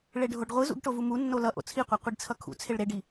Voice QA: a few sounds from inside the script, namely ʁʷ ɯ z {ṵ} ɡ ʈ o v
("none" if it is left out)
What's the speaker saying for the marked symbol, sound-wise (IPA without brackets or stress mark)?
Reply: ṵ